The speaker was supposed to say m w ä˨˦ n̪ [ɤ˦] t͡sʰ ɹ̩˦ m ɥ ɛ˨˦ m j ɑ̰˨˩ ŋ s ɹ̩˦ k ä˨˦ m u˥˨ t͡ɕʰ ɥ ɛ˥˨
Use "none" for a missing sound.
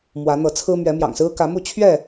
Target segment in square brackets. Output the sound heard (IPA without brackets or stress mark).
ɤ˨˦